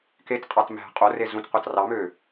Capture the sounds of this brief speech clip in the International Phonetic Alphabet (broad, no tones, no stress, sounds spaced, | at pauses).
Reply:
k e t qʼ ɑ t m æ̤ qʼ o r e z ũ t qʷ ɑ t r ɑ m ø